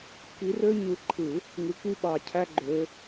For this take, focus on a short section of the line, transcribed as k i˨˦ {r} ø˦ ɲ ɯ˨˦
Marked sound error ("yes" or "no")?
no